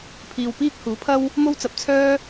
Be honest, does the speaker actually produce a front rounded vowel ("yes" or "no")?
yes